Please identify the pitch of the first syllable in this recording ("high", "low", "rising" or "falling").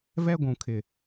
high